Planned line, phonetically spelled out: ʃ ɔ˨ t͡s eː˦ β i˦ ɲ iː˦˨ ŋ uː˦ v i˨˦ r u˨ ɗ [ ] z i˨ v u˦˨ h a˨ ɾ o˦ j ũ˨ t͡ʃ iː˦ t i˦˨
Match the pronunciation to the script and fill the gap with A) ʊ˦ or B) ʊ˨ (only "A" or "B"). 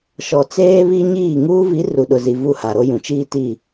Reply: B